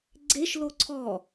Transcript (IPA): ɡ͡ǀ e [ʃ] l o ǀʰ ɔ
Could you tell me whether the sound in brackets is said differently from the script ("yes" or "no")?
no